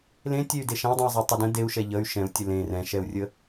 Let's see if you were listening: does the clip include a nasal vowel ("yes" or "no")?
yes